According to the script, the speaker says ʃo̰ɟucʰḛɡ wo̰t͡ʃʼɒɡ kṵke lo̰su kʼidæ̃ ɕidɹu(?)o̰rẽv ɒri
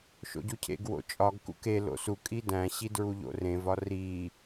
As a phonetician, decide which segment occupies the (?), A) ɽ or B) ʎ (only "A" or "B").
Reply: B